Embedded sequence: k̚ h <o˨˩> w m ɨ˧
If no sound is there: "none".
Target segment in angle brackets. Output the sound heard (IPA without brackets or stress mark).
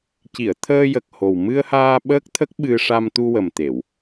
o˨˩